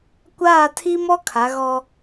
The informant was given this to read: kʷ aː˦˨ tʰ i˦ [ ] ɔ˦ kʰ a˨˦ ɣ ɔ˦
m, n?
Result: m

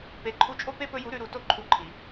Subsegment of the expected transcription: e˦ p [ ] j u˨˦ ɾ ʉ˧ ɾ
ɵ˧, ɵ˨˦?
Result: ɵ˧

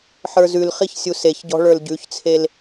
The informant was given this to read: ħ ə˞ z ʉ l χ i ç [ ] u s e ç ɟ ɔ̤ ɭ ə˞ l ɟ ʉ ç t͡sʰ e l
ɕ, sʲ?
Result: sʲ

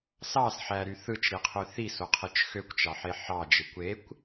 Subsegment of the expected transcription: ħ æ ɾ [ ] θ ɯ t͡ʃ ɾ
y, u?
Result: y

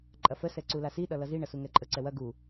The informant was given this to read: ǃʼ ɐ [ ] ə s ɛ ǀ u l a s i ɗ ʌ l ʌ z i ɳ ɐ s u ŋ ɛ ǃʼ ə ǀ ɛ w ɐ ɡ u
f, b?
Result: f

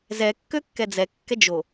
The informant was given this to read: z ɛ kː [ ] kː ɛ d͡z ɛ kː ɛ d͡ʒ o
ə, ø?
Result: ø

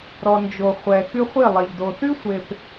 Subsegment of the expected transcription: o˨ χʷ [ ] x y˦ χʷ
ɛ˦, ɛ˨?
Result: ɛ˨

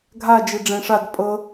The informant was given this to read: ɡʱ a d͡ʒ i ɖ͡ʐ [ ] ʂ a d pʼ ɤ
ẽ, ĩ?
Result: ẽ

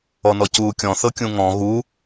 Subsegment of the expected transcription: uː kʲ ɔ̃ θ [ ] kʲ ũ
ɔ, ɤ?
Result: ɤ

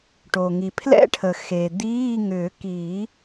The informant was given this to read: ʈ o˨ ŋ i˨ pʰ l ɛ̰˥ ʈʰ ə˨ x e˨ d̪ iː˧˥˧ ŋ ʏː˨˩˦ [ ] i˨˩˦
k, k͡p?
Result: k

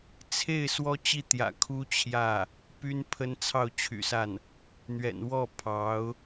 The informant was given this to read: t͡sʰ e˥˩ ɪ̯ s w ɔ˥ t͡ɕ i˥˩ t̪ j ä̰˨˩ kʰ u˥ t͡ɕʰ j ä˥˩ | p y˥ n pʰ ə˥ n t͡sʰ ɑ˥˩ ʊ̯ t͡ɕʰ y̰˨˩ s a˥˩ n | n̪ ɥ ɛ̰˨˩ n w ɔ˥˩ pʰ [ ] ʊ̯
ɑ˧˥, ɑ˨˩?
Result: ɑ˧˥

